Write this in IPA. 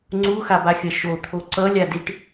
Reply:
ŋ͡ǀuxabaxʲʌ ʃot̪ʰo ǀʌlʲadiʈ

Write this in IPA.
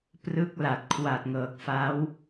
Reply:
prɯ˦˥k̚la˨˩t̚ kʰwa˨˩t̚ŋɤː˨˩k̚fa˦˥w

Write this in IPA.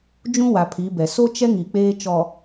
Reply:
d͡ʒũ˦wa˨pʰi˨˦bɛ˨ so˦t͡ʃɛ˦ ŋi˨k͡peː˦t͡ʃɔ˨

